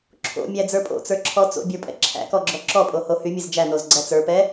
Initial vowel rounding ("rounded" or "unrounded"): rounded